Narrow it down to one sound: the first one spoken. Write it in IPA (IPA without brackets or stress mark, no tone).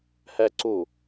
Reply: h